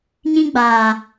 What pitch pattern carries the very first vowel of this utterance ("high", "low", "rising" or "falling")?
high